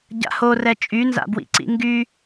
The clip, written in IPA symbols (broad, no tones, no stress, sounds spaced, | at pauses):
ɟ a̰ h o r ɛ t͡ʃʼ y n z a̰ b w ḭ ǀ ḭ ŋ ɡ y